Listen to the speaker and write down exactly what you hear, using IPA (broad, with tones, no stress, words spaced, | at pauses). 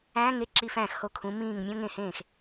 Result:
æ̃ː˧˥˧ŋe˥ ǁi˧˥˧fæ̃ː˥˩xho˥˩ kʰũ˨˥mĩː˥˩ŋmʲõ˥ ŋẽ˥˩hẽː˥˩x